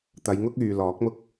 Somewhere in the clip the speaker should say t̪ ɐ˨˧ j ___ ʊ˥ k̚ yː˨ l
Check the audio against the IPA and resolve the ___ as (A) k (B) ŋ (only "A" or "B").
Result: B